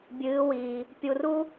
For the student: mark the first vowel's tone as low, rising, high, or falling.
rising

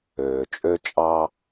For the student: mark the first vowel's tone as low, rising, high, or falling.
low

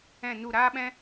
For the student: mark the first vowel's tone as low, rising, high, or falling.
falling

